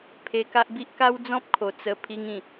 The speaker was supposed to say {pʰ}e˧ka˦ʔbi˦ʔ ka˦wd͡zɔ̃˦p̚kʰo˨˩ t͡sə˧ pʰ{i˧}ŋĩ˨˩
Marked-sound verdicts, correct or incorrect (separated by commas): correct, correct